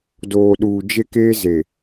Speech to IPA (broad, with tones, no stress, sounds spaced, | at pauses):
d oː˨ ɗ uː˨ d͡ʒ e˦ k eː˦ z e˨